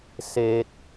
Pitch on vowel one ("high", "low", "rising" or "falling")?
high